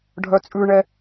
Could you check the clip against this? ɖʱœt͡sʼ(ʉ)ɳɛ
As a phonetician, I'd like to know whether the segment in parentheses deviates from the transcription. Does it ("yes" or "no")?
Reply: no